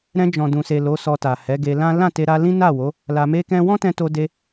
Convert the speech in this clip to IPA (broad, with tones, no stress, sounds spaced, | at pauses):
ɾ ɛ̃˧ d͡ʒ ɔ̃˨ d ũ˨ s e˨ l o˨˦ s ɔ˧ t a˨ h ɛ˨˦ ɡ e˧ l ã˦ l ã˦˨ t e˧ ɾ a˧ l ĩ˦ n a˦˨ w o˨˦ | l a˧ m e˦ k ɛ̃˦ w ɔ̃˦ t ɛ̃˧ t o˧ d e˧